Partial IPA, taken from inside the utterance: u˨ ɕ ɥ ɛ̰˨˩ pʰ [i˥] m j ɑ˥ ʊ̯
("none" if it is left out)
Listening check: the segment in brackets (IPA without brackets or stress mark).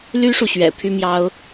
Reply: y˥